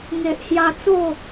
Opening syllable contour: low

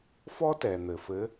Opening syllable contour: high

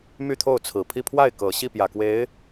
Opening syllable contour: falling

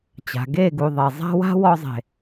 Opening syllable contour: low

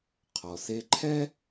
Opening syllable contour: low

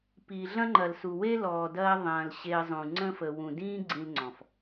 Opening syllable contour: low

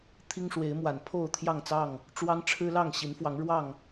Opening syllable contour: high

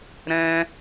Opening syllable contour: high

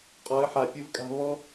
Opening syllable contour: rising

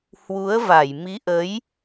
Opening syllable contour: rising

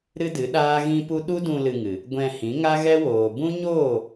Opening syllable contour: high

